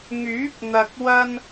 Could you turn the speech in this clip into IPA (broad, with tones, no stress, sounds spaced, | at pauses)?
ŋ yː˨˥ p̚ n̪ ɐ˧ k̚ w ɐ˥ n